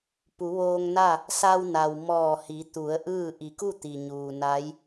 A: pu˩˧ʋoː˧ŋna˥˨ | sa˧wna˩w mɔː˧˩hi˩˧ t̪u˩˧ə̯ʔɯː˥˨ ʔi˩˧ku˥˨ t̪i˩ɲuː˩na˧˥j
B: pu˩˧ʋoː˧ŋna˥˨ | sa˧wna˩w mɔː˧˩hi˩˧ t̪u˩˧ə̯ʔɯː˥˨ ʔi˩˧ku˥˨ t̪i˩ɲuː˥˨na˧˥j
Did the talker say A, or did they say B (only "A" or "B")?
A